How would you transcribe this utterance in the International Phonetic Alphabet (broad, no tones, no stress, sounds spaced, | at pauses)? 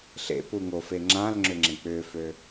ɬ ḛ p u ŋ o f e ŋ͡ǁ ã l ŋ͡ǁ ʏ ŋ͡ǁ ẽ k͡p ʏ f ø